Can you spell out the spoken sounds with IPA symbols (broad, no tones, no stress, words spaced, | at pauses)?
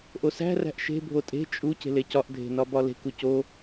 ʔosæ̤ ræ̤ʔʃe̤ bʱotʼe̤ t͡ʃʼu ce̤lecɒʔ dʱe̤nɒbɒle̤k uco